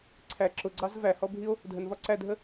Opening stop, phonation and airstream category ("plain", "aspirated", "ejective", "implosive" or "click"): click